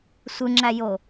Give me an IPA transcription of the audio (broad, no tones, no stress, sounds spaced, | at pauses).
sʷ ɯ ŋ͡ǁ æ j o